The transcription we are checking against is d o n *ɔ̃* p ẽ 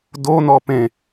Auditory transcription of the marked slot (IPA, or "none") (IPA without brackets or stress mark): ɔ